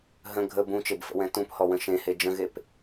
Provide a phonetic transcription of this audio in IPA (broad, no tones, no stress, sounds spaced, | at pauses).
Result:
ɦ ə̃ ɡʱ ə b ũ t͡ʃ e b f ə̰ w ɛ̃ t ũ p h ɔ w ə̃ ʃ ẽ h e d͡ʒ ə̃ ɣ e p